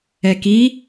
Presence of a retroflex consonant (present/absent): absent